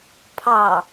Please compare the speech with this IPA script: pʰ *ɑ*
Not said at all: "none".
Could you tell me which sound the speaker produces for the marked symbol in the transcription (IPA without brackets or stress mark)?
ɑ